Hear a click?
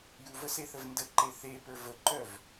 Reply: yes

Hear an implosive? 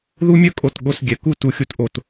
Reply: yes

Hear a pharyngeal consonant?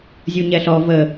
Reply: no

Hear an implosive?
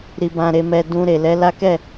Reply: no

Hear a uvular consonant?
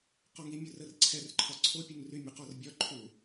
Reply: yes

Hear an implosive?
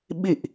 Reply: yes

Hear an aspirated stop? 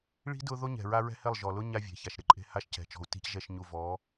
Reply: no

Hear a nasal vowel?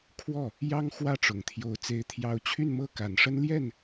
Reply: no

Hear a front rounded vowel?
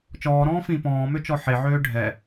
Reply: yes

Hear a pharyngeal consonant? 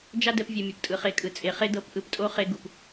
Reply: no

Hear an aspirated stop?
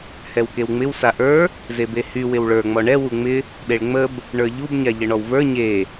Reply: no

